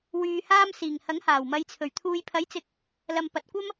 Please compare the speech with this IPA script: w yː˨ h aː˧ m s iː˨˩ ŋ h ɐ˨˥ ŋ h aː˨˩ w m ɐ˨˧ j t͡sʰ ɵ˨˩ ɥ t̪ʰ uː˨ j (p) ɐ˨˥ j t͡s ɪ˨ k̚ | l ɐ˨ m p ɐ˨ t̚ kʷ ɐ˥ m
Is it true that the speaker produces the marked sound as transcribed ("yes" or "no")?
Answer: no